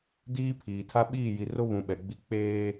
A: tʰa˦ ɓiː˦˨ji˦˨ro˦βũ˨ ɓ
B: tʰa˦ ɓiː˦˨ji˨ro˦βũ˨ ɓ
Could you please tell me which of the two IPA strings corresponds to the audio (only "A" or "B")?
B